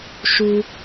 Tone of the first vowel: high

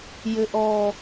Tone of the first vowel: low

